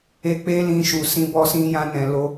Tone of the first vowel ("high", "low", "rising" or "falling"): high